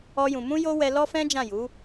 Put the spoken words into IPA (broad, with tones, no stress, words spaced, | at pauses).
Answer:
ɔ˦jũ˧ mũ˦jo˦wɛ˧ lɔ˦fɛ̃˦d͡ʒã˦˨ju˨˦